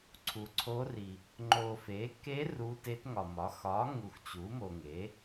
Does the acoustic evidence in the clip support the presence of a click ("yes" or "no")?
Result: yes